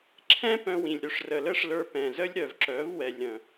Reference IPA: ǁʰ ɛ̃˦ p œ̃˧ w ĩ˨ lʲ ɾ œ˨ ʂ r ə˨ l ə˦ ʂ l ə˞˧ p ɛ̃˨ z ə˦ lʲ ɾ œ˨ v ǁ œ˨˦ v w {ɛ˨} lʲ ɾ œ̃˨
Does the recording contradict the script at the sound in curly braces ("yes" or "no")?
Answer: no